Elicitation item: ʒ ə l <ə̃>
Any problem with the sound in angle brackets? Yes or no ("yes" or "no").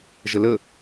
yes